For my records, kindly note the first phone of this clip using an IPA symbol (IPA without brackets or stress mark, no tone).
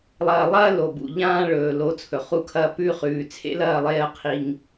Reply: lˠ